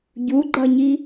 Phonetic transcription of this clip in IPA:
ɟ u ɡ͡ǃ ʌ ɲ i

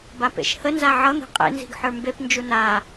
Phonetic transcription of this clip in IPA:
b a p ḛ ʃ h ə n z a ʕ ʌ n̪ e̤ qʼ ḛ n z i̤ ɡ ħ ə˞ m b e p n d͡ʒ u n a

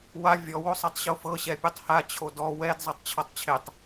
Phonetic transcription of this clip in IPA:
w a vʲ ɔ w o sˤ ɛ tˤ ɕ o f ɤ ɕ ɛ pʲ o tˤ h a t͡ɕʰ o d ɔ w ɛ d zˤ ɤ tˤ t͡ɕʰ ɔ tˤ t͡ɕʰ e tˤ

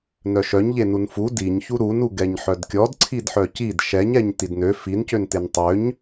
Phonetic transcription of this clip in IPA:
n œ ʃ œ ɲ ʎ e n u n f u d i ɲ ç u ɾ u n u ɡ ɛ ɲ ħ œ d kʲ ɔ d ǀʰ i d ħ œ c i d ʃ ɛ ɲ ɛ ɲ t i d n ø f i n c ø n t e n tˤ ø ɲ

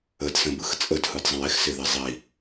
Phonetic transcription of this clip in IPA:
ə d s ə̃ b ɯ x t͡sʼ ə d h ɯ d zˤ ə̃ j ɪ x s ɪ ð ɪ zˤ i

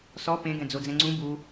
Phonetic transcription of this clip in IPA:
s ɔ p ẽ ɡ ɛ̃ d͡z o d͡z ɛ̃ ŋ͡ǀ ũ b u

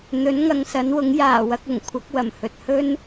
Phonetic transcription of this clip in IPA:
n̪ ɵ˨˥ n ŋ ɐ˨˧ ŋ s ɐ˨˥ n w ʊ˨˥ ŋ j aː˨˩ w ɐ˧ k̚ ʊ˨˩ ŋ kʷʰ ɐ˨˥ k̚ w ɐ˨˩ m h ɵ˨ t̚ h ɵ˥ n

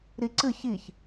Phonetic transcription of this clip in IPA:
ɾ i ǀ ɨ ç i ç

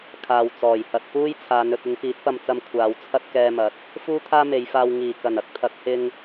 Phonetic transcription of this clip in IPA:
kʰ aː˨ w t͡s ɔː˨˩ j h ɐ˧ t̚ p uː˥ j t͡sʰ aː˨˧ n ɵ˨ t̚ ɪ˨˧ ŋ p iː˨˥ t̚ p ɐ˧ m t͡s ɐ˧ m kʷʰ aː˨˧ w t͡sʰ ɐ˥ t̚ k ɛː˧ m ɐ˨˥ t̚ | f uː˥ t̪ʰ aː˥ m e˨˧ j f aː˧ w ŋ iː˨˩ k ɐ˨˩ n ɐ˧ k̚ t̪ʰ ɐ˨˥ k̚ h ɪ˧ ŋ

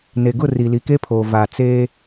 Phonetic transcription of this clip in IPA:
n e˨ ɡ ʊ˦˨ r i˨ l i˨ k e˦ pʰ oː˨ v a˨ t͡s eː˦

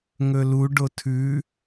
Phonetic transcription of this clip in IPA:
ŋ ɵ l u ɖ o tʰ ʉ

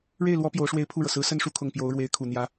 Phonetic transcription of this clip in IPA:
ɻ e˥˩ ɪ̯ l w ɔ˧˥ p j o˧˥ ʊ̯ ʂ w e˥˧ ɪ̯ pʰ u˥˩ ɻ ɤ˩ s ɹ̩˧˥ s ə˥˧ n ʂ u˥˩ kʰ ʊ˨˩ ŋ p j o˧˥ ʊ̯ ɻ w e˧˥ ɪ̯ kʰ u˨˩ n̪ j ä˧˥

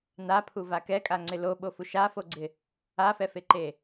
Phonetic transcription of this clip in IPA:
n a pʰ u v a k ɛ kʼ a ŋ͡ǀ ɪ l o ɓ o f u ʃ a f o ɡ͡ǀ ɪ | a f ɛ f e ǃ e

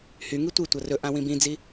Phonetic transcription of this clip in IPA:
h y ŋ i tʷ i tʷ ʌ r ɵ ʔ ã w ĩ b ĩ d͡z i

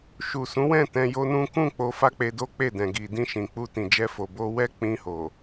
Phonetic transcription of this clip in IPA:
ʃ u˨ s ũ˨˦ w ɛ̃˦˨ t ɛ̃˧ j o˦ n ũ˦ k ũ˦˨ k͡p o˧ f a˦ k͡p e˧ d o˦ k͡p e˦˨ d ɛ̃˨ ɡ i˨ d ĩ˧ ʃ ĩ˨ k͡p u˧ t ĩ˨ d͡ʒ ɛ˧ f o˨ b o˧ w ɛ˦ k͡p ĩ˧ h o˨

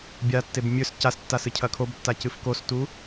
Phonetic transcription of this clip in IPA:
bʲ a tː e b mʲ ɵ s c a s tː a s ɨ cʰ ɐ kʰ o b tː a c ɨ f k o s t u

